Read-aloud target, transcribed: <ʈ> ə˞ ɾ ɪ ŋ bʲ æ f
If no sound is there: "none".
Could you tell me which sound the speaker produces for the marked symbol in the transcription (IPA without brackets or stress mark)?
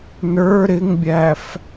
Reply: n